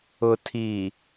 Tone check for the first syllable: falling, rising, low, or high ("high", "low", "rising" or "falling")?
low